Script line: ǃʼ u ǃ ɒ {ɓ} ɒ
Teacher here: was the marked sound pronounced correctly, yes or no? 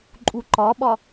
yes